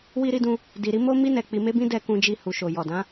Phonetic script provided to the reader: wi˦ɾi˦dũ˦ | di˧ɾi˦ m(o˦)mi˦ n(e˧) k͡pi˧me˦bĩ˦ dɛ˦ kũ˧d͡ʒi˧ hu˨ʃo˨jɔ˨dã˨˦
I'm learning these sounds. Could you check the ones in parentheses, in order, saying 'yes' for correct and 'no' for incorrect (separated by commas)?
yes, no